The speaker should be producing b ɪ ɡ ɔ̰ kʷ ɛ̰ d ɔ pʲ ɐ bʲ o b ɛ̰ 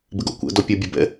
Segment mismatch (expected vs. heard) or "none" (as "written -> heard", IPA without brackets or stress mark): none